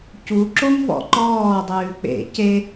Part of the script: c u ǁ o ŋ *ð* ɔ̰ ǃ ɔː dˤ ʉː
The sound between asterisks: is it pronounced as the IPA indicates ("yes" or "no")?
no